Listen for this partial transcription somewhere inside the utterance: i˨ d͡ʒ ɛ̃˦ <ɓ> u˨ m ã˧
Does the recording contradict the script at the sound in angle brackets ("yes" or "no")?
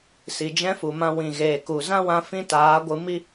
yes